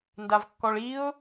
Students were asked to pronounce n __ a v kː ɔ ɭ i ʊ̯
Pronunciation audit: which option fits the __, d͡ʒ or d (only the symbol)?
d